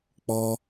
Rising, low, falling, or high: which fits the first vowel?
high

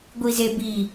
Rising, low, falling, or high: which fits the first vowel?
low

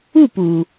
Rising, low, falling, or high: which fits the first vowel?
falling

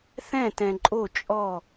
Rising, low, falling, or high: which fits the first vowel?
falling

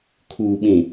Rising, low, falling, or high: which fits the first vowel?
low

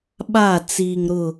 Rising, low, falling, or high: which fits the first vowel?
falling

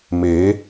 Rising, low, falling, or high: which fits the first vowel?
rising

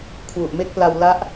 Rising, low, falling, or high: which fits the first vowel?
low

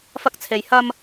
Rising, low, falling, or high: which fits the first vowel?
high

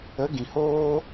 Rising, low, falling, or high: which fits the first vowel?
rising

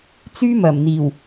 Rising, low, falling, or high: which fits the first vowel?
high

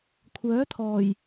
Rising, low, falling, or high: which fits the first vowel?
rising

